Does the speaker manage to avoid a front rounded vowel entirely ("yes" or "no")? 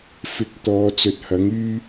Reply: no